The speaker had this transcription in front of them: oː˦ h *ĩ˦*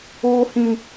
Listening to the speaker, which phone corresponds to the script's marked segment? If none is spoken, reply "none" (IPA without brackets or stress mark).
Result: ĩ˦